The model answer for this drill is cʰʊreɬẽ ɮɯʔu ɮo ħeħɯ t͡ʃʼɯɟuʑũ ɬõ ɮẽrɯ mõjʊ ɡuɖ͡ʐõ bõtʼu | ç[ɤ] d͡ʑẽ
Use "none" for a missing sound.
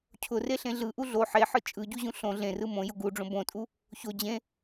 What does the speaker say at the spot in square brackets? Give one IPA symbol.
o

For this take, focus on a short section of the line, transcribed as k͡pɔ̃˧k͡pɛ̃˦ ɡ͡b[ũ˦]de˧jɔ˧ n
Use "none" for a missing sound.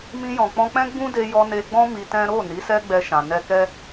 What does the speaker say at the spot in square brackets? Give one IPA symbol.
ũ˦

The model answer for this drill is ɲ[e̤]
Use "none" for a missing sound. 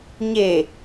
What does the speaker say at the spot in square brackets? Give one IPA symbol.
e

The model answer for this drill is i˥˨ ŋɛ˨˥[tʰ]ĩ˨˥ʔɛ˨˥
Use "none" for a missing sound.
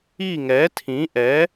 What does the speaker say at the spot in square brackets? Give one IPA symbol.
tʰ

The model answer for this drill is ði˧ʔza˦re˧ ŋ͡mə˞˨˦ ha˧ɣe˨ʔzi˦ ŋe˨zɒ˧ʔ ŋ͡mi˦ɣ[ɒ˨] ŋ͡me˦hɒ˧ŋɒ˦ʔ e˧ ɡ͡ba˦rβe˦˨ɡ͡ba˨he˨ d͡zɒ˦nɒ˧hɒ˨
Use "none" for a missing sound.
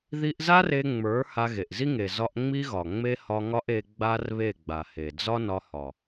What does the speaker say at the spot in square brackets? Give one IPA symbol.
ɒ˨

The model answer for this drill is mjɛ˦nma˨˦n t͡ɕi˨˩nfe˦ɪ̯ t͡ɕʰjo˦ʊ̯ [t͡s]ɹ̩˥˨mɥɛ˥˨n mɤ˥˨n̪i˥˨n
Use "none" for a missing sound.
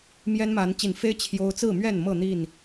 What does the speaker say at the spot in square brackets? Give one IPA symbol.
t͡s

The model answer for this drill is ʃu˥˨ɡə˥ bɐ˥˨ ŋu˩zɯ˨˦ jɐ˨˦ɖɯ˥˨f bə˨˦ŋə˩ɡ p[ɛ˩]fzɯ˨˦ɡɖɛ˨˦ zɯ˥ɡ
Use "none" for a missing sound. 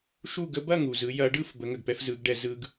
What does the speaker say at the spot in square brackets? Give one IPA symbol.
ɛ˥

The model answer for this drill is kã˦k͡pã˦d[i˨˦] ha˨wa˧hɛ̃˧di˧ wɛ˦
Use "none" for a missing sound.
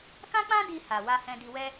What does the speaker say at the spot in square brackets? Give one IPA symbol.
i˧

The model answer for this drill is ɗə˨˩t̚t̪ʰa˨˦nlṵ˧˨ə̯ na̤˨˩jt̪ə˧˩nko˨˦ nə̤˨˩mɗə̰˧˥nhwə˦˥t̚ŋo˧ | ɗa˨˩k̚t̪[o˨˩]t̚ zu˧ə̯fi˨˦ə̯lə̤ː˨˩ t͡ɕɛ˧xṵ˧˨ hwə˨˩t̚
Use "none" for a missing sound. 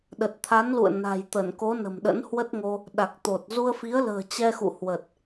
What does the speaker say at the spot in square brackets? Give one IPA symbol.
o˨˩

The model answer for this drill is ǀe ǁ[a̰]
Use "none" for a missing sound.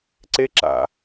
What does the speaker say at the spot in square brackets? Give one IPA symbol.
a̰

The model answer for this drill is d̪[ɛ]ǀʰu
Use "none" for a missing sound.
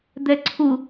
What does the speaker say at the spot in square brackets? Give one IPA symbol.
ɛ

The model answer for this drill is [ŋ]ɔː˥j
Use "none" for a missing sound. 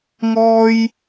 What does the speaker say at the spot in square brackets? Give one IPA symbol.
ŋ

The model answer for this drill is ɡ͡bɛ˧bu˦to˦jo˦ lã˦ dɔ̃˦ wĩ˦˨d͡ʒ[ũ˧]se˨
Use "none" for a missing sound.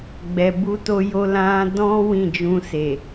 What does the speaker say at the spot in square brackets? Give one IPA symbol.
ũ˧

